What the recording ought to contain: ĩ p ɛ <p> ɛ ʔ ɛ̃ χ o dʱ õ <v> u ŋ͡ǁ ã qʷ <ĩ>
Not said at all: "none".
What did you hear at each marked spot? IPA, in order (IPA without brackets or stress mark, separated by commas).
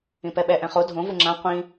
ɓ, v, ĩ